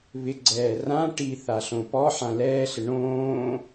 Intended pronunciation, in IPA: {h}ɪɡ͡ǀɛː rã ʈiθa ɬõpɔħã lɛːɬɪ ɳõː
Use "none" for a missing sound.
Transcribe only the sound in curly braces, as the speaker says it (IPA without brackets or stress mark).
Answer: β